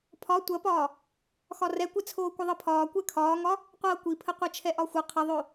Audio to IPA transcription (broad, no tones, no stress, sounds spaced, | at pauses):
pʰ ɒ tʷ ɐ p ɒː | x ɒ r ɛ kʷ ɛ t͡sʰ oː kʷ ɐ ðˤ ɤ pʰ ɒː kʷ ɛ kʰ ɒː ŋ ɒ | qʷ ɤː kʷ i pʰ ə qʷ ɤ t͡ʃʰ ɛ ʔ ɒ xʷ ɤ qʰ ə ðˤ o